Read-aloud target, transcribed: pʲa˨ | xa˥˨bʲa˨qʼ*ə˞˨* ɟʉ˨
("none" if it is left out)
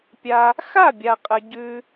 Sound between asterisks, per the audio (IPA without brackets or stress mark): ɐ˨